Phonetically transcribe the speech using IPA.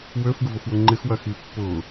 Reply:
w ø f ɡ ʊ v ʊ f w ʊ ŋ͡ǃ ɪ x w ɐ x i pː ʊ

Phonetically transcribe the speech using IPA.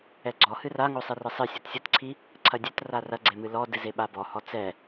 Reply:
ɛ ɡ͡ǀ ɔ h ɨ r a ŋ o sˤ e r ɘ sˤ ɨ sʲ o t sʲ ɐ t ǀʰ i | ǀʰ ɐ dʲ ɛ t r a r ɐ ɡ͡ǀ e m ɨ l ɔ d ɨ z e ɓ a b ɔ h ɔ t͡s ɛ

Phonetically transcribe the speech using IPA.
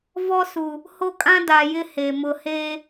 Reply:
v ɔ˦ s u˨ | h o˦ kʼ ã˦ d a˨ j ɪ˦ h e˨ m ʊ˦ h eː˦

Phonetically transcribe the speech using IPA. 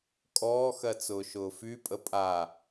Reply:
kʼ ɔː x ɜ t͡s ʊː ʃ ʊː f y pʼ ə pʼ a

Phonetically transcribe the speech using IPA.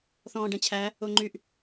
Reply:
θ ɔ̃ː ɖ ɛ̃ t͡ɕʰ æ | o ŋ͡ǃ y ʔ

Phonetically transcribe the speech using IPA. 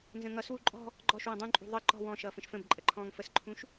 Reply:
n z ə̃ ŋ ʌ s w u ǃʼ ɔ̤ | ɡ͡ǃ ɔ ʃ w ə̃ dˤ ũ ǃʼ ṳ ðˤ ə ǃ ɔ̤ w ɔ̃ ʃ ʌː f ə̃ ʃ f ə̃ b ǃʼ ə ǃʰ ɔ̃ː ŋ f ə s ǃʰ ũ ʃ

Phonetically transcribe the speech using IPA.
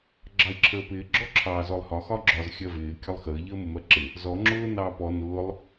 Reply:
ɡ͡ǁ ɑ i̯ ǁʰ əː p ɪː ɡ͡ǁ ɔ ǁʰ ɑː z ɔ lˠ h ɒ x ɒ ɡ͡ǁ ɒ z xʲ ɜ v ɪː kʲ ɒ lˠ x əː ʎ əː m ʊ m ɜ ǁ ɪ | z ɔ ŋ͡ǁ ʊː n ɑː p ɔ n ʊː lˠ

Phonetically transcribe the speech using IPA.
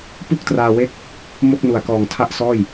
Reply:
p u˥˩ k̚ t r aː˧ w e˦˥ k̚ | m o˥˩ k̚ n u˨˩ a̯ k ɔː˨˩ ŋ tʰ a˥˩ ʔ s ɔː˥˩ j

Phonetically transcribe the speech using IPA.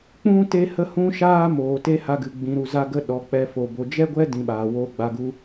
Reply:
k͡p ũ˦ t e˦ h ə˦ h ũ˦ ʃ aː˦ m oː˨ t e˦ h a˧ ɡ ɨ˨ ɡ͡b ĩ˨ ɾ u˨ z a˦ ɡ ə˦ ɗ ɔ˨ k͡p ɛ˧ f o˨ b o˨ d͡ʒ ɛ˦ ɡʷ ɛ˦ d ĩ˧ ɓ aː˨ w oː˦ ɡ͡b a˧ ɡ u˦

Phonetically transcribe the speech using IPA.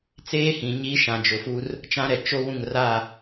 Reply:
t͡s eː˦ h ĩ˨ ɲ i˦ ʃ ã˨ d͡ʒ ʊ˨ f u˦ r | t͡ʃ ã˦ ɾ ɛ˨ t͡ʃ o˦ w ũ˦˨ ŋ r a˦˨

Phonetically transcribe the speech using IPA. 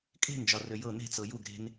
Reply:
kʼ e̤ n d͡ʒ ɒ r ø j ɤ n e̤ t͡s ɤ j u ɡ ɾ e̤ n

